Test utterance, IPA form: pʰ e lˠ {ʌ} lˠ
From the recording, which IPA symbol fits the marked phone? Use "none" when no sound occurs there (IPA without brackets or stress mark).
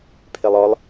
ɔ